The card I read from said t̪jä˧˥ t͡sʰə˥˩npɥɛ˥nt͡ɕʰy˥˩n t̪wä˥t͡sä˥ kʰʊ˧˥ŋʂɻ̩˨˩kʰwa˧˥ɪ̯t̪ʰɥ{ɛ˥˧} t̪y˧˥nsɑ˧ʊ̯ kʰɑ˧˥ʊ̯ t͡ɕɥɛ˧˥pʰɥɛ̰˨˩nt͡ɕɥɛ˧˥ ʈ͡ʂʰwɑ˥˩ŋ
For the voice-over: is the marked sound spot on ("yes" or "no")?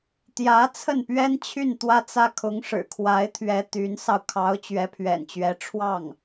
no